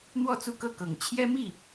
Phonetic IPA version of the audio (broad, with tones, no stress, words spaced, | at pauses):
n̪wɔ˥˧t͡su˥˧kɤ˥˩kɤ˨˩ŋ t͡ɕʰjɛ˥mi˥˩